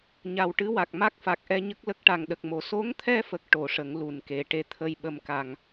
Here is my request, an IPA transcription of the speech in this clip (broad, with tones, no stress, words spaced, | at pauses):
ɲa˨˩wʈɨ˧˥wa˨˩k̚ ma˦˥k̚fa˨˩k̚ʔɛ˧ɲə˦˥k̚ lə˦˥k̚ʈa˨˩ŋɗə˨˩k̚mo˨˩˨ so˧˥ŋt̪ʰɛ˧fə˨˩k̚ ʈo˨˩˦ʂə˨˩˦ŋ lu˨˩nke˨˩ ʈe˧˥t̪ʰə˧jɓə˧mka˨˩ŋ